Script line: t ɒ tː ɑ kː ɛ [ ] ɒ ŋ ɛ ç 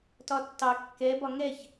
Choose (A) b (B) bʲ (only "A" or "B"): A